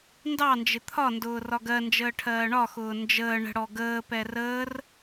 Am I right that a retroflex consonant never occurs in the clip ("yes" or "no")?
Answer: no